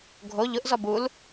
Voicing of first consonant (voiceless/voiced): voiced